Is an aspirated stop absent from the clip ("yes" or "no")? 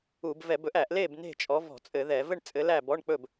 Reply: yes